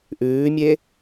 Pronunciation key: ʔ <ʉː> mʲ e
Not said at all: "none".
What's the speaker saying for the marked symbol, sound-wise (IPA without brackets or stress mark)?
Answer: ʉː